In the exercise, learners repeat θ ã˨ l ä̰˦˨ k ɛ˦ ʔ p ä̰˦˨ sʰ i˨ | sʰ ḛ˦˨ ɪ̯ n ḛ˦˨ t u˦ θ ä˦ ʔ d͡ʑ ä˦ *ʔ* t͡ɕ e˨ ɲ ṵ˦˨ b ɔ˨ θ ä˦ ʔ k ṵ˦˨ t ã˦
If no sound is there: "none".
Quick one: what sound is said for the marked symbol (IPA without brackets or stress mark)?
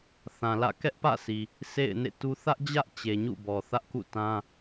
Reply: ʔ